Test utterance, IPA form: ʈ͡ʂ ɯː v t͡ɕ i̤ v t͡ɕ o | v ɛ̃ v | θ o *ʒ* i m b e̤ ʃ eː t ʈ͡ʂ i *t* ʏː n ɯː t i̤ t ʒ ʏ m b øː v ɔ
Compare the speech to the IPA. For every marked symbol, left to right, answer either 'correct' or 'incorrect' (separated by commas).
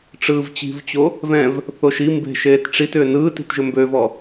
incorrect, correct